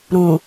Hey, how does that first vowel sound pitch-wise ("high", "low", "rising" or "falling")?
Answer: low